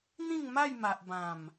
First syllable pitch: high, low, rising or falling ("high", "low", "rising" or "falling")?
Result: falling